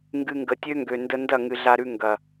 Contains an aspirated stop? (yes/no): no